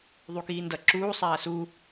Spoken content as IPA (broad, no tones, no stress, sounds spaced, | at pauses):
ðˤ u k iː n d ʌ ǁ uː sˤ aː s u